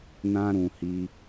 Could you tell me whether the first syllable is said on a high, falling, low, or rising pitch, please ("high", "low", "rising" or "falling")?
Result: high